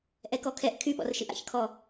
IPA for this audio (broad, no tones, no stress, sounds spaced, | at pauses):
ʔ ɛ k ɔ kʰ ɛ ʔ kʰ y ɓ ɔ̰ r ʃ ɨ ʔ a̰ ç kʰ ɔ